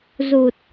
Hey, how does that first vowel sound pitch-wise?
low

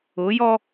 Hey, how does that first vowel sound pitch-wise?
rising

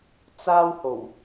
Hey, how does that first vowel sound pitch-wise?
high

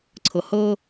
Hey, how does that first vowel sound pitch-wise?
low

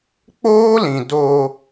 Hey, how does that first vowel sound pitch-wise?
high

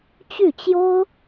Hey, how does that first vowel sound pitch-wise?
falling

